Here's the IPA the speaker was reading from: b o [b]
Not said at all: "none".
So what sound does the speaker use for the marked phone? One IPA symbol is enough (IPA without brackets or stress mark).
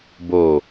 none